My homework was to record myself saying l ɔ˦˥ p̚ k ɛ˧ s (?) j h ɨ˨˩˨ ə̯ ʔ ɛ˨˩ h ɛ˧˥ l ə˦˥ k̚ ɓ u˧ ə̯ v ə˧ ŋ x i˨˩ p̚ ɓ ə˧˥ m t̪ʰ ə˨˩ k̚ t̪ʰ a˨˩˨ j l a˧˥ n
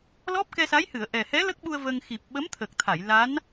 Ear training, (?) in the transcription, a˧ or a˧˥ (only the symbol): a˧˥